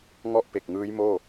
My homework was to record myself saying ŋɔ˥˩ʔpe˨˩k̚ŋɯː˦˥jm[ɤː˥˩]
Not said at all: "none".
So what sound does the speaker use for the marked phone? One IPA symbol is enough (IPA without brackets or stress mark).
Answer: oː˥˩